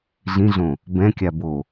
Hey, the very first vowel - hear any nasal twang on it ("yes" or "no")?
yes